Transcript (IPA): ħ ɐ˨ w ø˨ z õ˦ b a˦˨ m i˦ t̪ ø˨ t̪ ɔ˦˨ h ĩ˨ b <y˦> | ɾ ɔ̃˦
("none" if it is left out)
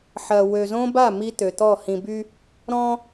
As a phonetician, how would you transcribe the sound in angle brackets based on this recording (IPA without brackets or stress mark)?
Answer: y˦